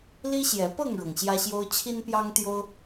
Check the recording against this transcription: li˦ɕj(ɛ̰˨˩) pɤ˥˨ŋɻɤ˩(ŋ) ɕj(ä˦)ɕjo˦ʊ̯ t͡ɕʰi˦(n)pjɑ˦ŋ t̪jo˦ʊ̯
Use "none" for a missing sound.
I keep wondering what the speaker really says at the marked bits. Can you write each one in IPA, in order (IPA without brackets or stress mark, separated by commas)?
ɛ˨˦, ŋ, ä˦, n